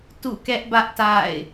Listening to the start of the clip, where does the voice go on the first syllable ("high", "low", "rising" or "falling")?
falling